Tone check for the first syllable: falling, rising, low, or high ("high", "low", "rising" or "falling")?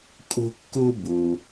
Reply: high